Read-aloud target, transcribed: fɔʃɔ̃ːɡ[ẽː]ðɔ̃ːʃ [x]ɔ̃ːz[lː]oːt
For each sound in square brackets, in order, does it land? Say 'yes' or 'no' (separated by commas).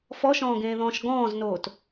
yes, no, no